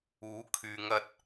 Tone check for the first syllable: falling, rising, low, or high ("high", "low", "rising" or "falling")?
rising